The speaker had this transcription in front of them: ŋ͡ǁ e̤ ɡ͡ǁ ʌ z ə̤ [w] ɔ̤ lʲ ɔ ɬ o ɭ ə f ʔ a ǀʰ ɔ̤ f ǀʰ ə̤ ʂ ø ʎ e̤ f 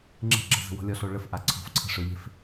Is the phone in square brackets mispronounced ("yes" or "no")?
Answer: no